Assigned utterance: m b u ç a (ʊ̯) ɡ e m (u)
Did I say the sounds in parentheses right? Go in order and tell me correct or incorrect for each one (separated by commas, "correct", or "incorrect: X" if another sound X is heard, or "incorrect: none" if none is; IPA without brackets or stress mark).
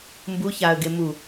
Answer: incorrect: ə̯, correct